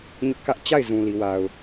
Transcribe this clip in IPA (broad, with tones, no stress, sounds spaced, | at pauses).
ɲ ʊ˦ ʔ k ä˦ ʔ t͡ɕ a˦˨ ɪ̯ z ũ˨ l i˨ w a˨ ʊ̯